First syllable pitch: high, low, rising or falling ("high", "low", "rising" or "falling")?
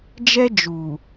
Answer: high